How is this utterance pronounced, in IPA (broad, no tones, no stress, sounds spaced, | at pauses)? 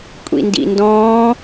kʷʼ ḭ n d ḭ n d ɔ̃ː